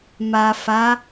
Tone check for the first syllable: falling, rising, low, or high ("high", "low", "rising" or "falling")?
low